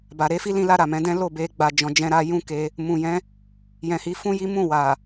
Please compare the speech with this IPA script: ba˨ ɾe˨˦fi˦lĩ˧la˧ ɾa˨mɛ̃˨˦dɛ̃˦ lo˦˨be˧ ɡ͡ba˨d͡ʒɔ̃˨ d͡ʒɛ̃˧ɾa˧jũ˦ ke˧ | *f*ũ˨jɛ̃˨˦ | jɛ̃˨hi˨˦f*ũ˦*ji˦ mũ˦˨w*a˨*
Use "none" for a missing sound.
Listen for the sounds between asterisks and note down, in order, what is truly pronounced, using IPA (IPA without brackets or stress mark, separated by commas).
m, ũ˦, a˨